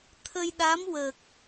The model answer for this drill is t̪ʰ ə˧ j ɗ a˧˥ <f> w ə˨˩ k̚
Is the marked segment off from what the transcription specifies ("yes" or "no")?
yes